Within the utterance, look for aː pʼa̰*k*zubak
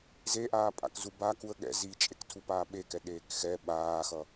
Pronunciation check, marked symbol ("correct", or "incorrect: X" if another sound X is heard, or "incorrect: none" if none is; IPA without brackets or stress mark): correct